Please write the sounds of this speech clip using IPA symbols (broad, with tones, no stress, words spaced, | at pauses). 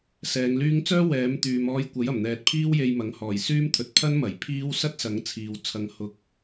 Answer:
sɛː˨˧ŋlyː˥ŋ t͡sœː˥ wɛː˨˥m t̪yː˨˧m ɔː˧jkʷɐ˨˥jɐ˨˩mn̪ɛː˨t̚ pʰiː˥wje˧jmɐ˨˥ŋ hɔː˨˩jsyː˥mt̪ʰɵ˨t̚ pʰɐ˥nmɐ˨˩j pʰiː˥w sɐ˥t̚sɐ˨˥ŋ t͡sʰiː˨˧w t͡sʰɐ˧ŋhʊ˧k̚